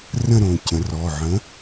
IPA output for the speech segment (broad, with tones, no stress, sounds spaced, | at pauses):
r ə̃˥˧ ɾ õ˩˧˩ c ə̃˩˧ r ɔ˩˧˩ ʕ ə̃˨˥